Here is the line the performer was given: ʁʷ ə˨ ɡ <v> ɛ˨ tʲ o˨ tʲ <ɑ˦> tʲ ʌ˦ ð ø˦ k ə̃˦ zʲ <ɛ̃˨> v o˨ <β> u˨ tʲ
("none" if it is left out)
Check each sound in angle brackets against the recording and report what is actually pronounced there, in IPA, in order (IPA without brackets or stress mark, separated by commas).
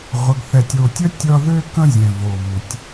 θ, ə˦, ɛ̃˨, β